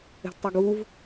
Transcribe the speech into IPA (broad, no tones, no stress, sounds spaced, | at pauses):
ɛ̤ d tˤ ɛ ɡ u v